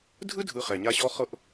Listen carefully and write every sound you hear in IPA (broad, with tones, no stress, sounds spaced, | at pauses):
dʱ ɯ˥ dʱ ɯ˨ χ ɛ˩ ɲ a˦ ɕ ɔ˥ χ ɤ˥ ʔ